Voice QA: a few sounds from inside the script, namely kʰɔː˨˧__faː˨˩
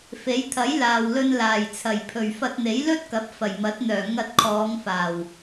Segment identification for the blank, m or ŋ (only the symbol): ŋ